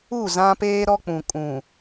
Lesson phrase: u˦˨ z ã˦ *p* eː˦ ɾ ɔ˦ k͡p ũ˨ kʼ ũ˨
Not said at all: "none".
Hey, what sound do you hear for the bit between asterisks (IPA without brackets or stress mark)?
p